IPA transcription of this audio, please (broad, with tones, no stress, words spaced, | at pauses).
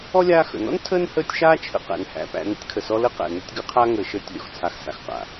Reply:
ɔ˥lʲaː˦ xə̰˩nɔ̰˥n tʰəː˥nhəː˦tʲ ʃaː˦t͡ʃʰə̰˨ qæ̰˩nhæ̰˩pæ̰˨ nə̰˥tʲkʰə˩sɔ˦ lə˥qæ̰˩ nə˦tʲɡə˦qʰa˥ ŋəː˨ʃəː˦tʲ lʲɔ̰˩xt͡sʰa˨x sa̰˨xqa̰˩